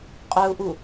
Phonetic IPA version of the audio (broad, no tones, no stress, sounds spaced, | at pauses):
qʼ œ u̯ ʔ u